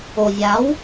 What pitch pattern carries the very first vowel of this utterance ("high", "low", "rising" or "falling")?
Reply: low